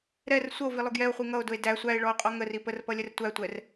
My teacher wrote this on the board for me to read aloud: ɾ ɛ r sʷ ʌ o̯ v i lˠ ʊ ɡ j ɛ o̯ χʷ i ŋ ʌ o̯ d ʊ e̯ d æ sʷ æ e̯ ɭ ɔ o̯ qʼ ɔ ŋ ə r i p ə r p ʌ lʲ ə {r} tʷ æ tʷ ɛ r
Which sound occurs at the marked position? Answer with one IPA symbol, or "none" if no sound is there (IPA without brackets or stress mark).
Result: r